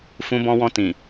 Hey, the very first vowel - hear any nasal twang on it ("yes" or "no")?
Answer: yes